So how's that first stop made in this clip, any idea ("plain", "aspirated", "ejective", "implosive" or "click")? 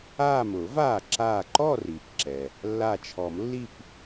click